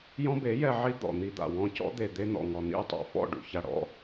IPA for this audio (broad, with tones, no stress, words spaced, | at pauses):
jɔ̃˦be˨˦jɛ˧ ʕi˦d̪ɔ̰˨ n̪i˧d̪a̰˨ wɔ̃˧cɔ̰˦d̪e˨ d̪e˧n̪ɔ̰˨ ŋɔ˨n̪ḭ˧u̯ tˤa̰˨fɔ̰˦˨ ɖṵ˨ça˨ɽɔ̰˧